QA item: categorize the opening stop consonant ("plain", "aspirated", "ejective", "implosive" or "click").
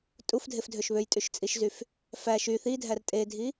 ejective